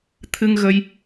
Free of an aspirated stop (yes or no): no